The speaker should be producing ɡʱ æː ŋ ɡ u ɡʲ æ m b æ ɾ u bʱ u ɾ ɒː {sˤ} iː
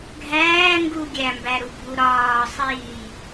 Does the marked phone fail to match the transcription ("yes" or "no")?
no